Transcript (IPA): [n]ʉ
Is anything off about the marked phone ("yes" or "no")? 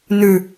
no